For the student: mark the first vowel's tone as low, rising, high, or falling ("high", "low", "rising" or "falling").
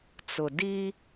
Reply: low